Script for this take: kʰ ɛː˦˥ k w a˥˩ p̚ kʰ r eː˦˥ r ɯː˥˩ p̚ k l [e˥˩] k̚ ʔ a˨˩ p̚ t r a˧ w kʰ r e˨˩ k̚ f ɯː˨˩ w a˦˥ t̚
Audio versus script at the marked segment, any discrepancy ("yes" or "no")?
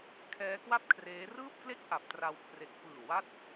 no